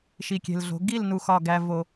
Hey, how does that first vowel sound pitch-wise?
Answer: low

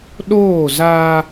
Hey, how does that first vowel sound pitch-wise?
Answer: falling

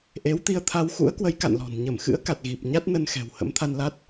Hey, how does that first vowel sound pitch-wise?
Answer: rising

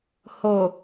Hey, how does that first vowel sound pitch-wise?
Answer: low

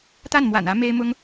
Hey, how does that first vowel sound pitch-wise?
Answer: falling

